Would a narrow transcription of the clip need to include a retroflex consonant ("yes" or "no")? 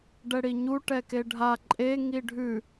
yes